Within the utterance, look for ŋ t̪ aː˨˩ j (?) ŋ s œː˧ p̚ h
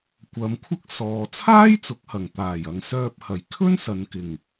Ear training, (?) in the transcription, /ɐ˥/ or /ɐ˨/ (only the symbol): ɐ˨